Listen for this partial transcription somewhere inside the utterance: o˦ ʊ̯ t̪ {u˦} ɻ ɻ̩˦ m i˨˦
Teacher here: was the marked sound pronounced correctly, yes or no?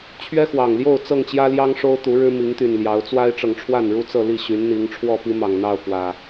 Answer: no